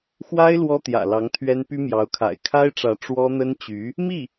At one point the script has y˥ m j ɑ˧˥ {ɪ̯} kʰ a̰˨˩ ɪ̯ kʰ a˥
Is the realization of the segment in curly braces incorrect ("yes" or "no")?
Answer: yes